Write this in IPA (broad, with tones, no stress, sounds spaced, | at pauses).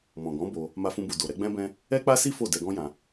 m ɔ̃˨ ɡ ɔ̃˨˦ b o˧ | m a˧ f ũ˧ b u˨ d o˨ ɾ ɛ˨˦ ɡ͡b ɛ̃˦ b ɛ̃˦ | ɛ˦ k͡p a˦ s i˦ f o˦˨ d ɛ˧ ɡ ɔ̃˦ j ã˧